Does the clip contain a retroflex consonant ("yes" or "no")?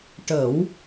yes